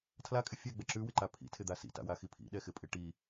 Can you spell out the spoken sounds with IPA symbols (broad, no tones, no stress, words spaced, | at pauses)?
tʰlakʼɪ fʲɛɡ͡bɛ ǁʉwɪǃa pʰḭtʰɪd̪a sḭta̰waxi pʰḭɗɛxɪpʼɪ ʈi